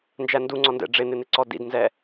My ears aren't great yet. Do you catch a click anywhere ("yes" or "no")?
yes